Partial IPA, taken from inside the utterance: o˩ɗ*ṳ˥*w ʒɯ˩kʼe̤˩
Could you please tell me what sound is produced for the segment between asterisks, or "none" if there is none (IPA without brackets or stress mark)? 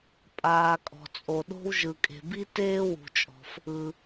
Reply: o̤˥